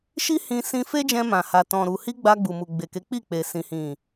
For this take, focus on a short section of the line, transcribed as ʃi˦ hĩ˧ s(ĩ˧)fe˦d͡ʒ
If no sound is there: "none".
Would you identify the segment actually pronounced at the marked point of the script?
ĩ˧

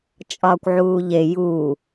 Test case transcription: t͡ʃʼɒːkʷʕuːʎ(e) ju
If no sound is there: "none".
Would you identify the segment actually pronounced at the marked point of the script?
e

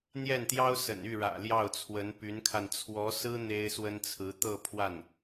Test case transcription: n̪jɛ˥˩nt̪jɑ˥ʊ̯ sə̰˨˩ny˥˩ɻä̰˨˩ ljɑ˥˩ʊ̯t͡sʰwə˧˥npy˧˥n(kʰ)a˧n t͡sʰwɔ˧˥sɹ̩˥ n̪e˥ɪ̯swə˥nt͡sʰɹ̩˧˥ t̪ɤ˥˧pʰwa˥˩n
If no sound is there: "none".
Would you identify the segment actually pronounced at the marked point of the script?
kʰ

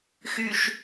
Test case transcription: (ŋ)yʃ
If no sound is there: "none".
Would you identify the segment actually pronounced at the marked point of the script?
x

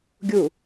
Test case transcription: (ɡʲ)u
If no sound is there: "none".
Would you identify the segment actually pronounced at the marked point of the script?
ɡʲ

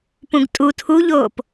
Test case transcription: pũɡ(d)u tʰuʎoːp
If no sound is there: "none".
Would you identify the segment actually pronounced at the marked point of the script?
tʼ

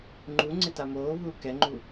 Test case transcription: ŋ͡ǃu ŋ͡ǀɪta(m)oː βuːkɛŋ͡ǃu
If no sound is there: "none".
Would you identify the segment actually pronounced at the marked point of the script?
m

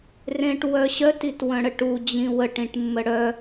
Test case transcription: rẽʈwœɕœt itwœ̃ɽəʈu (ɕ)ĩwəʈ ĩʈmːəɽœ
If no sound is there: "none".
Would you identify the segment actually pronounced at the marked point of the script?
d͡ʑ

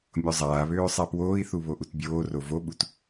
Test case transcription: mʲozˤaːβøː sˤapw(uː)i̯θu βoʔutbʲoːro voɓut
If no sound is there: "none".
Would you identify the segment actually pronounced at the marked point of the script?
oː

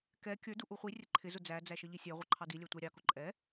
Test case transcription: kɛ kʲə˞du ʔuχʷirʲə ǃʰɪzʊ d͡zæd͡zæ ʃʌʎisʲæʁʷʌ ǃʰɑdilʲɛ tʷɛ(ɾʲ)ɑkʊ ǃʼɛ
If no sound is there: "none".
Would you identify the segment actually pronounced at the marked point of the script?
ɾʲ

